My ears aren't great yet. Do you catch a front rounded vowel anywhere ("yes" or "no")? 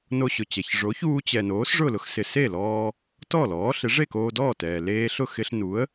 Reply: no